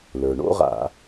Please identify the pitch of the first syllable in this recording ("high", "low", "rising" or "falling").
low